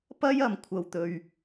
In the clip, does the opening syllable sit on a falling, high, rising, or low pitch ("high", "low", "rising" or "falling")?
high